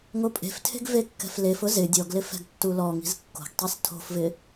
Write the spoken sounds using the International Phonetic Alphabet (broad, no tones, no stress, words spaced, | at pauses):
ŋopʼe̤ftʰe̤ɡ vekːɛ̤flefʊ zɪ dʲɔɡlɪ fɛ̤ɡtːulɔŋi̤z kːo̤ɡtˤis tʰo̤fvɪ